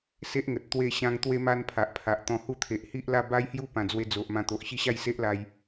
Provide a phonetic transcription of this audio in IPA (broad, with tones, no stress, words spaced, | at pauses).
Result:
se˦ʔŋə˨t̚ t̪we˥˧ɕã˦ŋ t̪we˦ma˦npʰa˨ʔpʰa˨ʔ t̪ɔ̃˧hu˥˧t̪ʰe˨ʔ hi˦ʔla˥˧ ba˦jhju˥˧pã˨˩ d͡zwe˧ d͡zo˨ʔmã˧ t̪o˨ʔɕi˦ɕa˥˧j se˦ʔla˧j